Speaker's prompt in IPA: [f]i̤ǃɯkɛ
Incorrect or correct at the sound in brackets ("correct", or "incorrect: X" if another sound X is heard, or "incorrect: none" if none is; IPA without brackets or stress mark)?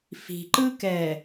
correct